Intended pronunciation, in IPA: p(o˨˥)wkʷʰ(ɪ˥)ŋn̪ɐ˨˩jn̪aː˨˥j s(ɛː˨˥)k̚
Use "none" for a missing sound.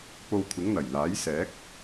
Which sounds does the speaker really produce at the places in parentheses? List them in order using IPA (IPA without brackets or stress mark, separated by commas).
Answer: o˧, ɪ˨˥, ɛː˨˥